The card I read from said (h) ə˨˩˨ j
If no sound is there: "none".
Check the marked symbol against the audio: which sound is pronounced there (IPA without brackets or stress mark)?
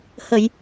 h